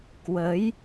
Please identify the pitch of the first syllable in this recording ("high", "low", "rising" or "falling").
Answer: rising